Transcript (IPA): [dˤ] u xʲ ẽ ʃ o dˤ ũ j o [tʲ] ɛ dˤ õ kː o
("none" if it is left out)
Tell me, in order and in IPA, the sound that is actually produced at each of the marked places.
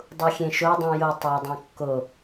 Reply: dˤ, tˤ

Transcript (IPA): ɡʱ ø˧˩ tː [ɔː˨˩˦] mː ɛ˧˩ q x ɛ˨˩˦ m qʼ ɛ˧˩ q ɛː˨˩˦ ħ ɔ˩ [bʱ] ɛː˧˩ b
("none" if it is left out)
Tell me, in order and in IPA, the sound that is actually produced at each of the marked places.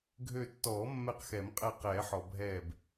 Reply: ɔː˨˩˦, bʱ

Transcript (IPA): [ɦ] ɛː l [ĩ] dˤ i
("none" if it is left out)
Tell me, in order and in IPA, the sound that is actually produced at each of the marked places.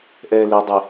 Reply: ʔ, i

